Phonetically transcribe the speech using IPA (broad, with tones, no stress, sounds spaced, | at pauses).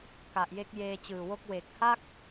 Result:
k a˨˩ ʔ j e˦˥ k̚ j eː˧ t͡ɕ ɯː˨˩ w o˦˥ k̚ w e˨˩ k̚ h a˥˩ k̚